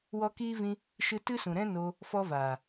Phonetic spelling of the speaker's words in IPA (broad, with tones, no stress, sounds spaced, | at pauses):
w ɔ˦ k iː˦ v ĩ˧ | ʃ ɨ˧ t ɨ˦ s ũ˨ ɾ ɛ̃˦ n o˧ | f ɔ˦ v aː˨